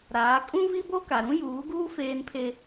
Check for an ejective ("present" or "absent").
present